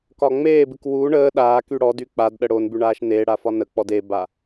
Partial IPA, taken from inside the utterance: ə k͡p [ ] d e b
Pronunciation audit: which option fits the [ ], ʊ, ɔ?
ɔ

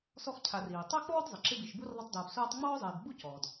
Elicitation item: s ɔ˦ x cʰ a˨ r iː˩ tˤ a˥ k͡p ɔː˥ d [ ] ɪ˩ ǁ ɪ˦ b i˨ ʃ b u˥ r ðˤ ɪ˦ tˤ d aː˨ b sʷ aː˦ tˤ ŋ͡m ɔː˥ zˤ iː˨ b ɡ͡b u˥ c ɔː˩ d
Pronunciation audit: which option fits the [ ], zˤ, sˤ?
zˤ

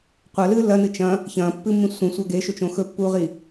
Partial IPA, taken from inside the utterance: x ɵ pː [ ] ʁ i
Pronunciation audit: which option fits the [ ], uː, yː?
uː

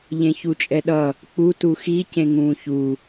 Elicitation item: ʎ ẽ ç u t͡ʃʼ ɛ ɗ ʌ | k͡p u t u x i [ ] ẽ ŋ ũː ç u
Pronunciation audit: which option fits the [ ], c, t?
c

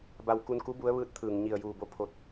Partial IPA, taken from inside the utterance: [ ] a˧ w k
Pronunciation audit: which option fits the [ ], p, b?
b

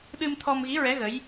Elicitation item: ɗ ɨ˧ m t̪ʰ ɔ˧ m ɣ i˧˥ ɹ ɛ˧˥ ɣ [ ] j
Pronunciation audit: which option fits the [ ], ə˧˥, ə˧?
ə˧˥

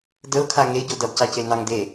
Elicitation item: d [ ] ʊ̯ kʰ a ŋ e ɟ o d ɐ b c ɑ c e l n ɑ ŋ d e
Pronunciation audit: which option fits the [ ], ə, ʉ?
ə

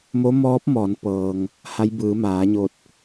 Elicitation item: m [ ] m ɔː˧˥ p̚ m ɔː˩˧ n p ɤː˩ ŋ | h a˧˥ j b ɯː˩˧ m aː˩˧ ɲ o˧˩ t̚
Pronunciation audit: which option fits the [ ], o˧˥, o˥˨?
o˧˥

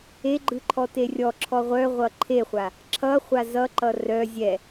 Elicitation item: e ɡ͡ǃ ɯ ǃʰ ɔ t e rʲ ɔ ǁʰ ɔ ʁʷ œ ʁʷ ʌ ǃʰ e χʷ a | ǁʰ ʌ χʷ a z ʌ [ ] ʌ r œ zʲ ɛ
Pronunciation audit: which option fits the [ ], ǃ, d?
ǃ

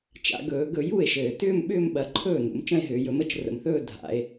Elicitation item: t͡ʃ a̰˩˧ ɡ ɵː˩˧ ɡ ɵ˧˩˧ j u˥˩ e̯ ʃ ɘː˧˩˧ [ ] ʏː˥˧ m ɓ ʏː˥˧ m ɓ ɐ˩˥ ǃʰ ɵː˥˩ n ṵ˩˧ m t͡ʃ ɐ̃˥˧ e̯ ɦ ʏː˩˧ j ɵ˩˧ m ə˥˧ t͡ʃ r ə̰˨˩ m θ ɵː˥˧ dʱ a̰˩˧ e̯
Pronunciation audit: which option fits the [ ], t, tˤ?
t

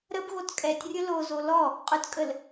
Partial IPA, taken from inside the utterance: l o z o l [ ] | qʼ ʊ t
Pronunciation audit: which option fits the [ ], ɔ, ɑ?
ɔ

